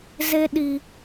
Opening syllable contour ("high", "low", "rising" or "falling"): high